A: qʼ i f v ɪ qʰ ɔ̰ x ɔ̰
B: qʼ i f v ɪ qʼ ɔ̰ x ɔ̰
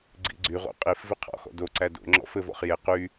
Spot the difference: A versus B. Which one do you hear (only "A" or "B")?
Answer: A